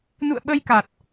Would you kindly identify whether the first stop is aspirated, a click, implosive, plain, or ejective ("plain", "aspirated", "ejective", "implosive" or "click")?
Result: implosive